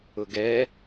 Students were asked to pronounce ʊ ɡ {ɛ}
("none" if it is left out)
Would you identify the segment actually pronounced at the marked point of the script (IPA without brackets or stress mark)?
ɛ